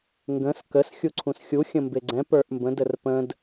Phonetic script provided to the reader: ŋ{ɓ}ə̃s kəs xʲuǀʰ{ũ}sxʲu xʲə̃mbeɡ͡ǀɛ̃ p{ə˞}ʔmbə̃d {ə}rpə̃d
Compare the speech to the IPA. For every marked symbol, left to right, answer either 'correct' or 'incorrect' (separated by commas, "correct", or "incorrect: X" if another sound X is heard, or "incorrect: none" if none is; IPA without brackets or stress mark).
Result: incorrect: ɡ, correct, correct, correct